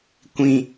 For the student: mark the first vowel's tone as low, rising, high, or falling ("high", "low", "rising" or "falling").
low